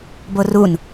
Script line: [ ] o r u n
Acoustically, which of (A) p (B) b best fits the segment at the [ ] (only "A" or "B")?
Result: B